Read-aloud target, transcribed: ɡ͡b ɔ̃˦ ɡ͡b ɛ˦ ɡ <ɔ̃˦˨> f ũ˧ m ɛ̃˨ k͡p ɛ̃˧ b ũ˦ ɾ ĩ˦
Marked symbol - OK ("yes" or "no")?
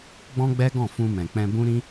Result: yes